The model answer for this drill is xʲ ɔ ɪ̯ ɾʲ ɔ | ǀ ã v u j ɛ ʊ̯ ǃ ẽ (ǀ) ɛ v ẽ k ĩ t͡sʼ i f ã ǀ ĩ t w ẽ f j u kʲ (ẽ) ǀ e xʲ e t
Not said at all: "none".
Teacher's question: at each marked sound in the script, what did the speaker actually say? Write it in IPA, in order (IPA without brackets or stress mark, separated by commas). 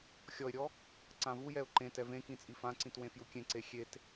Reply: t, ẽ